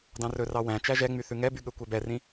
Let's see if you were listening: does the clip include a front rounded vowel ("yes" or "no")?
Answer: yes